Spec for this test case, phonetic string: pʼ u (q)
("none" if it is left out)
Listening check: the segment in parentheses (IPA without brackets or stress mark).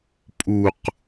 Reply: q